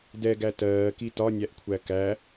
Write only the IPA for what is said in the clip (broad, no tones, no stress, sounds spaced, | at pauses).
d ɛ ɡ æ t ɜː k i t ɒ nʲ æ ʔ kʷʰ æ k æ